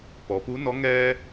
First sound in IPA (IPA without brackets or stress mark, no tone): p